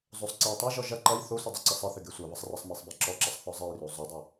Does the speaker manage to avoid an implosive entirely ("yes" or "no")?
yes